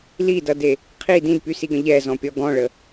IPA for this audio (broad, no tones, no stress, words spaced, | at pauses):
lidʌde | qʰi dĩdpysiɡə̃ ʎɛzɔ̃pʲɔ ɡɔ̃ɭə